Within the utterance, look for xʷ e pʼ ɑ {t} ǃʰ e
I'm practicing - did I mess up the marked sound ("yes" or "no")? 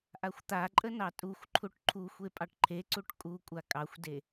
yes